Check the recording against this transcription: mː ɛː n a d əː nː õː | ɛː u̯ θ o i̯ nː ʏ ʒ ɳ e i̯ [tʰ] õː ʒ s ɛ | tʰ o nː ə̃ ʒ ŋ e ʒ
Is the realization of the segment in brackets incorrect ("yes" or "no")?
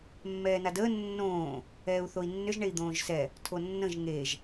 yes